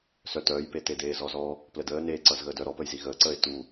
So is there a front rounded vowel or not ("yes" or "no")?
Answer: yes